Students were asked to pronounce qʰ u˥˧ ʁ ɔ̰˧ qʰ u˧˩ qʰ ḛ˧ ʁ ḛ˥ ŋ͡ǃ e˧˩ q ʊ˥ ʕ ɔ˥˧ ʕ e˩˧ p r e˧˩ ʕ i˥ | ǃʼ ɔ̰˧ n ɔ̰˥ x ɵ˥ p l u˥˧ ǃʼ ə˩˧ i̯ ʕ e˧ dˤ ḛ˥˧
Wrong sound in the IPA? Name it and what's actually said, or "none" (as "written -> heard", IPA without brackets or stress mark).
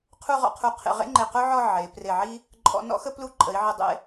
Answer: ɵ˥ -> ə˥